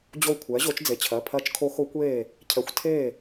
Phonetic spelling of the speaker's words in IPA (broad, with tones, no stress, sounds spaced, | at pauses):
d͡ʑ o˥˩ kʷʰ ɛː˩˥ ʑ o˩˥ t͡ʃ d͡z e˩˧˩ t͡ɕʰ ɜ˩˧˩ pʰ ɜ˦˥ t͡ʃ kʰ o˦˥ x o˦˥ kʷ eː˥˩ | cʰ ɛ˩˥ xʷ tʰ eː˥˩